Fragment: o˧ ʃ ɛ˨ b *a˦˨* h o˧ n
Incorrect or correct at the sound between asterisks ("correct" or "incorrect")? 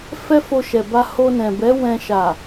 incorrect